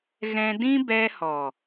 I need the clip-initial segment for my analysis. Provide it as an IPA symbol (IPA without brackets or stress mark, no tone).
ɣ